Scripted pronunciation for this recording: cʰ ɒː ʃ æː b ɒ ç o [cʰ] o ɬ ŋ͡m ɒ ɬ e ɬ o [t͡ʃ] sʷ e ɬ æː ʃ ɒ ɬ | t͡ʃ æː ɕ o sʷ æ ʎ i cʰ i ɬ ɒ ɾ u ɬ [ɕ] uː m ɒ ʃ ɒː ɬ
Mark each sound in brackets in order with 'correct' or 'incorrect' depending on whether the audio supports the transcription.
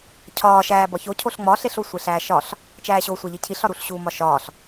correct, incorrect: none, correct

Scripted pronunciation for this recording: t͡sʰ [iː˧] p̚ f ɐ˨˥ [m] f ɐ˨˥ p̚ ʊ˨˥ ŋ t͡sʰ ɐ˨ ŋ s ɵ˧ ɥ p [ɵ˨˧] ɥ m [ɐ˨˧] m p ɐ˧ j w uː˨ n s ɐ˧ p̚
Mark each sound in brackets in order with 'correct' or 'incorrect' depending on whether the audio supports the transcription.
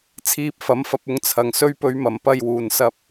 correct, correct, correct, correct

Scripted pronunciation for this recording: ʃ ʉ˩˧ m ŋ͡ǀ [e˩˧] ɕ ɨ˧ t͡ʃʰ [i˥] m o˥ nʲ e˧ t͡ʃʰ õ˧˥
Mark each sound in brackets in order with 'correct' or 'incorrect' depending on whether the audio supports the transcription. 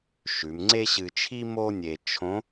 incorrect: e˥, correct

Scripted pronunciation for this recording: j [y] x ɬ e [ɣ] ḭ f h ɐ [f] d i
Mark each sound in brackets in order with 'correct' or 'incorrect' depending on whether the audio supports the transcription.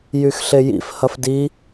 correct, incorrect: j, correct

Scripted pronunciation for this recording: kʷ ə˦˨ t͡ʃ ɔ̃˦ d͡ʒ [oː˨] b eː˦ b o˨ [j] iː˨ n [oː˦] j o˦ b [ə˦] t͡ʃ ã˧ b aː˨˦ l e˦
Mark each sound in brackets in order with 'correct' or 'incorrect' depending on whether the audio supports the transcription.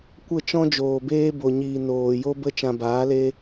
correct, incorrect: ɲ, incorrect: oː˨, incorrect: ə˧

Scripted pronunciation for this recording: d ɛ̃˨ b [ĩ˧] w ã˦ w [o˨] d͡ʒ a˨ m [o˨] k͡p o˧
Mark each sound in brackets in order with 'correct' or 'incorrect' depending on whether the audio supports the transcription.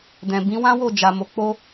incorrect: ĩ˨˦, incorrect: o˦˨, correct

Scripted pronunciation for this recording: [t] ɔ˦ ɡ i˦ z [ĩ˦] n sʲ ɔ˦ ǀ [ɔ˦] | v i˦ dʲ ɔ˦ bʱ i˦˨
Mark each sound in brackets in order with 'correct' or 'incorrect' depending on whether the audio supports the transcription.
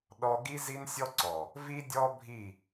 incorrect: ɗ, incorrect: i˦, incorrect: ɔ˨

